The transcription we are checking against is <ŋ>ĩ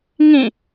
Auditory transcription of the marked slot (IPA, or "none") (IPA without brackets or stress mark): ŋ